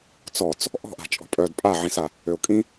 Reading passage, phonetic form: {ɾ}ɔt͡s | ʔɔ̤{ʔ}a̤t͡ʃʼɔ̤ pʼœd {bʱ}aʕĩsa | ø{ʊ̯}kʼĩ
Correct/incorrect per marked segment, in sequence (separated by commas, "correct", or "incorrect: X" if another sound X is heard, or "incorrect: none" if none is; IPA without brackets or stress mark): incorrect: t͡s, correct, incorrect: pʼ, correct